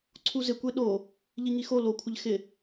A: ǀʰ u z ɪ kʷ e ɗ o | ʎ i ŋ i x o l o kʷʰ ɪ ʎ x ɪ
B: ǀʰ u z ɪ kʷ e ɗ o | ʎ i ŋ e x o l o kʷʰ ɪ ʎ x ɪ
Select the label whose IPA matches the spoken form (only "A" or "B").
A